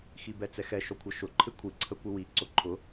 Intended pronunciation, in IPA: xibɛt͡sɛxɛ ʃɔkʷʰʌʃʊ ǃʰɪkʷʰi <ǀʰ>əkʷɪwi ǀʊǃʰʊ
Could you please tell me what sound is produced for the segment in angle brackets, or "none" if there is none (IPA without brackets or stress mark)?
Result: ǀʰ